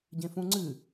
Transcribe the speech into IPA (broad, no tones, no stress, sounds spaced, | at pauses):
ɟ ẽ f ũ ŋ͡ǀ ɨ